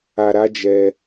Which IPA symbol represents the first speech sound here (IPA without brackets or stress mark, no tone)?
a